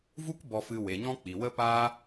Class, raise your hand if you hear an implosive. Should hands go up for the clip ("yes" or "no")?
no